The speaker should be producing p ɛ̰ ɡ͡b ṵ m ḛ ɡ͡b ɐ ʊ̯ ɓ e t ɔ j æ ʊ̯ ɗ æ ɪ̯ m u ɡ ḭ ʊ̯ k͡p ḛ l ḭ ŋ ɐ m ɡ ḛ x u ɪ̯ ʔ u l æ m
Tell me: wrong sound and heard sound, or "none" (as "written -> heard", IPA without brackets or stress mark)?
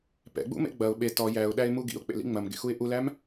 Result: ŋ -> ŋ͡m